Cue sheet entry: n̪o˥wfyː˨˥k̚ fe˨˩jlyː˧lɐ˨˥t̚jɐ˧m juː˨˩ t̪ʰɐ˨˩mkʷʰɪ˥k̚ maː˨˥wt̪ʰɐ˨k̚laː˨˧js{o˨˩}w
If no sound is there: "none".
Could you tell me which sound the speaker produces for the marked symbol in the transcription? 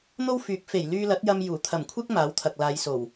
o˨˩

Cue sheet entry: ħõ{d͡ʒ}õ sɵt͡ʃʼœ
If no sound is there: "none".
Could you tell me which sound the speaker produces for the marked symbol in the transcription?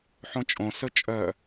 t͡ʃʼ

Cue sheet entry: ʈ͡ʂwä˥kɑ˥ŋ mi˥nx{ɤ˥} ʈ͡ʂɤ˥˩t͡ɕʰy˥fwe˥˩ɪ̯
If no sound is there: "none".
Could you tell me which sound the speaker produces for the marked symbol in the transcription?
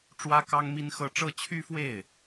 ɤ˥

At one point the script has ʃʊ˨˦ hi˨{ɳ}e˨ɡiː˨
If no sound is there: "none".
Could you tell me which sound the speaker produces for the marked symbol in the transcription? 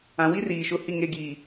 ŋ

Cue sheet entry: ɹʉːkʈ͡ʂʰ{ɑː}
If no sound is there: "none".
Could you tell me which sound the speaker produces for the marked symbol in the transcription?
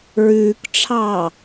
ɑː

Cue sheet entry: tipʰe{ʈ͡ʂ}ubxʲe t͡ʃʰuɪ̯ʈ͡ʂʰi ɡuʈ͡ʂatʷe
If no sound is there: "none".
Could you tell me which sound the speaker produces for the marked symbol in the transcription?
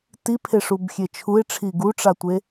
ʂ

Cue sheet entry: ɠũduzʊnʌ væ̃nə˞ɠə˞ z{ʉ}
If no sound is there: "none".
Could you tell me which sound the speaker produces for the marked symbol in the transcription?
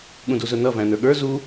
u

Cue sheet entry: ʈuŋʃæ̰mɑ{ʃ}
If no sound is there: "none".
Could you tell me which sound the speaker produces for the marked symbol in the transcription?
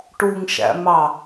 none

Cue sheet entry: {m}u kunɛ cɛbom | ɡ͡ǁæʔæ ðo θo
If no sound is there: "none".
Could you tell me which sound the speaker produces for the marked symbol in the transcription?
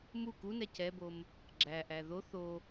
m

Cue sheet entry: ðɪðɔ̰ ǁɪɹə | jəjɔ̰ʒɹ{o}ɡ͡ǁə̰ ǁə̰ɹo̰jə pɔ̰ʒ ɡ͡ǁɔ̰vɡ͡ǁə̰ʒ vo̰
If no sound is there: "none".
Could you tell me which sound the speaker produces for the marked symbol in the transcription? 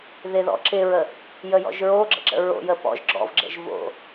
o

